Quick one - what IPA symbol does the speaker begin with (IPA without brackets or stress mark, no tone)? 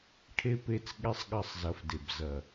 ʈʰ